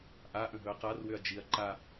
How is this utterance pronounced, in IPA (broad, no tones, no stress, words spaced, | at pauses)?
ʔa ʔə̃ɦɵɐ̯qarwʏɐ̯ d͡ʒiɐ̯ ǃa